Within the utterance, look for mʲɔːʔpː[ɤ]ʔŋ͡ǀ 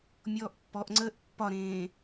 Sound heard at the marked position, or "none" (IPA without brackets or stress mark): ɔ